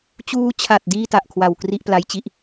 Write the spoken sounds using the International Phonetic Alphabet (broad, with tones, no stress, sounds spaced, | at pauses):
t͡ɕ uː˧ t͡ɕʰ a˨˩ t̚ d iː˥˩ t a˨˩ ʔ kʰ w a˨˩ w k r i˥˩ ʔ p l a˦˥ j t͡ɕ i˦˥ ʔ